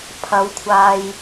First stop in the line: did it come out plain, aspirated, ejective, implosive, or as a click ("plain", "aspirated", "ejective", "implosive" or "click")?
aspirated